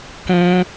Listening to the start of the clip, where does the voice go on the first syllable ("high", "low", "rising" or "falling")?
high